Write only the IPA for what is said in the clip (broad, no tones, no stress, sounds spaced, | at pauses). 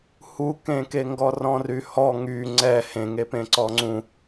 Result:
h u k ẽ k e ŋ ɡ ɔ r ɔ̃ r y h ɔ ŋ y ŋ͡ǀ ɛ h ẽ ŋ e p ẽ ǀ ɔ ŋ͡ǀ ũ